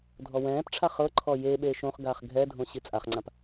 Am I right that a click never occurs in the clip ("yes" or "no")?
no